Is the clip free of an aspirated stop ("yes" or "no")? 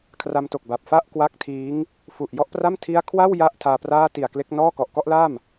no